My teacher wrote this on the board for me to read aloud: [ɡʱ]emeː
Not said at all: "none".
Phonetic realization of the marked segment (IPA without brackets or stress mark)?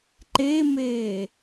ǃ